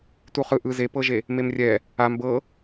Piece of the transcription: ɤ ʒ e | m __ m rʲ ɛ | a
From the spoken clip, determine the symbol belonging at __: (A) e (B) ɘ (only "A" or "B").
A